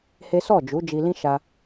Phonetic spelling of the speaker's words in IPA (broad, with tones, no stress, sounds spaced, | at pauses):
h e˦ s ɔ˦˨ d͡ʒ u˨˦ d͡ʒ i˧ l ĩ˦ ʃ a˧